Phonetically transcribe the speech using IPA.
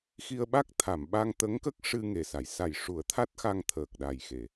x i˧ ə̯ ɓ a˦˥ k̚ t̪ʰ a˨˩˨ m ɓ a˧ ŋ t̪ ə˧˥ ŋ k ə˦˥ k̚ ʂ ɨ˧ ŋ e˨˩ s a˨˩˨ j s a˨˩ j ʂ u˨˩˦ ə̯ t̪ʰ a˦˥ t̚ x a˧ ŋ t̪ʰ əː˨˩ k̚ ɗ a˨˩ j x e˨˩˨

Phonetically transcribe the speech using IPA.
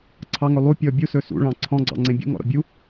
ǀʰ ɑ ŋ ɵ lˠ u pʲ ɔ bʲ u s ɵ s ṵ ɭ ɑ̃ ǀʰ ɔ̃ ɡ͡ǀ ɑ̰ ŋ͡ǀ ẽ bʲ ṵ ŋ ɔ̰ ɾ ɔ̰ bʲ u

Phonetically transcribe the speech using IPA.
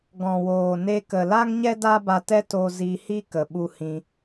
ɡ ɔ̃˨ w oː˨ n e˧ k ə˨ l a˦ ŋ ɲ ɛ˦ d a˦ b a˧ t ɛ˦ t o˧ z i˧ h i˦ k ə˨ ɓ u˧ h ĩ˧

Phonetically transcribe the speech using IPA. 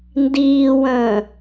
n d iː w ə̃ː

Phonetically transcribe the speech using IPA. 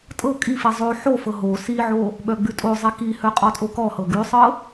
tʼ ɤ kʼ i f i zˤ o ħ o f ɤ ɦ o s i ʕ o | ɓ œ ɡ͡b ʉ tʼ o zˤ i k i h œ qʼ ɔ tʼ o k ɔ h ɤ ɡ ʉ sˤ ɤ

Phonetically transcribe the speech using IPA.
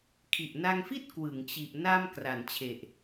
kʰ i˨˩ ʔ n a˧ ŋ f i˥˩ t̚ k w ɯ˩˦ ŋ t͡ɕ i˨˩ ʔ n a˧ m k r a˩˦ n t͡ɕʰ e˨˩ ʔ

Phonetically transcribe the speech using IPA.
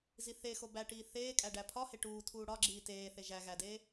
z i θ e x o b æ ʈ iː θ eː kʼ æ ɖ æ pʰ ɒ h e ʈ uː tʰ uː ɽ ɒ ɡ͡ǁ iː t eː θ e ʒ æ ɣ æ d eː

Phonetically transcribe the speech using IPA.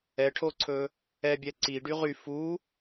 ɛ ʈʰ o ǀʰ ɵ | ɛ bʲ ɛ ǀ i ɖ y ʁ y f u

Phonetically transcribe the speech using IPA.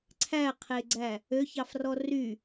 ǀʰ æ qʰ e ɡ͡ǀ æ | ø ç ɑ f r ɔ r y

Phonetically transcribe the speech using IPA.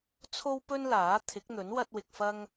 t͡sʰ o˥ w p ɵ˥ n l aː˨˥ t̪ʰ ɪ˨˥ k̚ n̪ ɵ˨˥ n w ɐ˥ t̚ w ɪ˧ k̚ f ɐ˥ ŋ

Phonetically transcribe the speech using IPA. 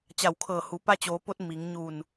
t͡ɕ a˧˩ w kʰ ɤː˧˩ h u˩˧ p a˧ t͡ɕ oː˩˧ p o˧ t̚ m i˩˧ ŋ ɲ u˧˩ n

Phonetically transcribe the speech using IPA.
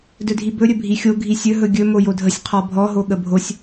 d ɵ dʱ i b ɵ ɾʲ ɵ bʱ i xʲ o ɡʱ i sʲ ɵ ɦ ɵ ɡʲ ɵ m o j o dʱ ə sʲ qʰ ɔ bʱ ɔ ɦ o ɠ ə bʱ o sʲ

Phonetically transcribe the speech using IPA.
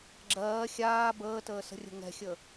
ɡ͡ǁ ɜː xʲ aː b əː t əː s ə̤ rʲ ə̤ ŋ ɛ̤ xʲ ə

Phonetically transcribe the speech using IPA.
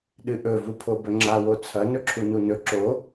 ɗ ɨ ʔ ɵ v u pʰ o b ɵ ŋ͡ǁ a w o t͡sʰ ɐ n ɵ ǁʰ u n u n ɵ ǁ o

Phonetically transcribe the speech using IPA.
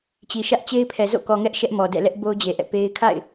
t͡ɕ i˨ ʃ ä˦ ʔ t͡ɕ e˦ ɪ̯ pʰ ɛ˨ z o̰˦˨ k ɔ˨ ŋ ɛ˦ ʔ ʃ ɛ˦ ʔ m ɔ˨ d ɛ̰˦˨ l ɛ˦ ʔ b o˦ ʊ̯ d͡ʑ e˨ ʔ ɛ̰˦˨ p e˦ ɪ̯ kʰ a̰˦˨ ɪ̯

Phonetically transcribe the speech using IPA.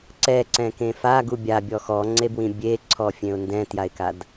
ǀ ɛ ǀ ɛ̃ k ẽ f a ɡ u bʲ a bʲ ɔ x ɔ ŋ͡ǀ e b w ĩ bʲ e ǀʰ ɔ fʲ ẽ ʊ̯ n d ɛ̃ t j a ɪ̯ k a d

